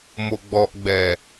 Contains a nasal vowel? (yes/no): no